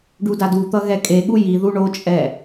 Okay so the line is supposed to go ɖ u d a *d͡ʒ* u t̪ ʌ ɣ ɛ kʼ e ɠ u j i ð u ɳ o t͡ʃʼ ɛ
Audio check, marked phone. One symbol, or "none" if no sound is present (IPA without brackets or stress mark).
d